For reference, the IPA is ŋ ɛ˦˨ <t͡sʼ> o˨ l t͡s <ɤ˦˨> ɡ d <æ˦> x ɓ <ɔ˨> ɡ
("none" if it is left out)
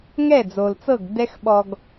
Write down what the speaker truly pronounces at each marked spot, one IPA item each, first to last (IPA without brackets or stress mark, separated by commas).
d͡z, ɤ˦˨, ɛ˦, ɔ˨